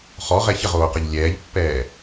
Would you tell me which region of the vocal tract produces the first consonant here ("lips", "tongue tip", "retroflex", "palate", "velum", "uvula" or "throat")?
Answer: uvula